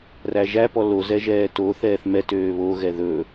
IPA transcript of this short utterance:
ræʒæ pɔlo zɛʒɛːto θɛːθmɛ tøːβo ɣɛðɵ

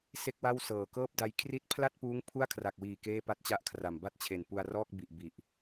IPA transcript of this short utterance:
se˥˩k̚wa˥˩w sɤː˩˦kɤː˥˩p̚da˦˥j kʰri˦˥t̚pʰla˥˩t̚puː˦˥ŋ pʰu˥˩a̯kʰra˨˩k̚wiː˨˩ keː˥˩pa˥˩t̚t͡ɕa˥˩ʔkʰra˨˩m ba˥˩t̚t͡ɕʰe˨˩npu˧a̯rɔː˥˩k̚ bi˨˩ʔ bi˨˩ʔ

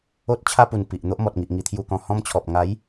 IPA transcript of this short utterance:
o˦t̚t͡ɕʰa˦pu˨˩n pi˨ʔ n̪o˦ʔmɔ˨t̚ŋi˨ʔ ŋi˧t̪ʰju˧kɔ̃˧ hɔ̃˦mt͡ɕʰɔ˨p̚ ŋa˨˦j

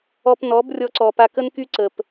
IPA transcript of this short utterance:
ɔ˧pnɔ˨˦b rʲɔ˧ǀɔ˨pa˧ kə˦nky˦ǀə˨p

